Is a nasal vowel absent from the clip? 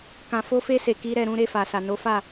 no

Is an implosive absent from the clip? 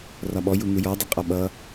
no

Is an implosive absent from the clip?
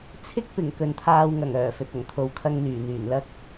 yes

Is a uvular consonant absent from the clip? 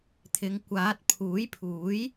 yes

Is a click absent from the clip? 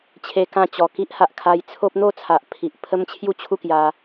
yes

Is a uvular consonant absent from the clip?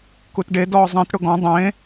yes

